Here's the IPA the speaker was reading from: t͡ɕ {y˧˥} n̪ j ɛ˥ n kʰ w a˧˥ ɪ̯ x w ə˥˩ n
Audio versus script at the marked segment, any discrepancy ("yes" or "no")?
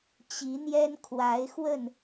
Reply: yes